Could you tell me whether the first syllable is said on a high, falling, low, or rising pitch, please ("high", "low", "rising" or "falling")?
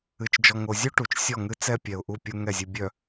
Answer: low